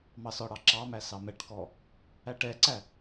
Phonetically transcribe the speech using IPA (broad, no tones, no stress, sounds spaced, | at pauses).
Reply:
m ɑ s ɔ ɽ ɑ ǁ ɑ m æ s ɑ m ɛ ʈ k ɔ | æ ʈ ɛ ǀ æ